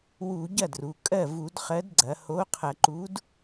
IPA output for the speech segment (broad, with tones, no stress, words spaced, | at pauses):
wu˧˩˧ ɟɐ˥˩dru˩˧ kʼɜ˥˩ vu˧˩˧dχɜ˨˥dɡ͡ǀɐ˩˧ ho˨˥ qʰɐ˧˩˧ǃu˨˥d